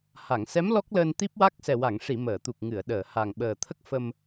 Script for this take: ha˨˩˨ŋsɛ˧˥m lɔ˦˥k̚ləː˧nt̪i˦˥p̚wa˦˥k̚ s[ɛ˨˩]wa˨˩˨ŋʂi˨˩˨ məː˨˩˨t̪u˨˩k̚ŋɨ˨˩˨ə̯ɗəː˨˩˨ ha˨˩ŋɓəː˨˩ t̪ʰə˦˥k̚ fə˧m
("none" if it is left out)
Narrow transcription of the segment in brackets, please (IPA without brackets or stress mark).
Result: ɛ˨˩